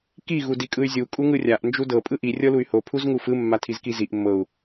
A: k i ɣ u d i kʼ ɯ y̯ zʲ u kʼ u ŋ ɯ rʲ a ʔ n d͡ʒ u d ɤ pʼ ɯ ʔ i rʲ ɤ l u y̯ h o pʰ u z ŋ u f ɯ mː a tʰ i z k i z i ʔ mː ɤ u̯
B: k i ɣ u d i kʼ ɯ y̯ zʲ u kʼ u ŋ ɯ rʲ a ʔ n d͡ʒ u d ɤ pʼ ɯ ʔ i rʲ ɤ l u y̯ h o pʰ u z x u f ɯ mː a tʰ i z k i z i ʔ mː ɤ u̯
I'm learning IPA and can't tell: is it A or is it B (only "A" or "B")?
A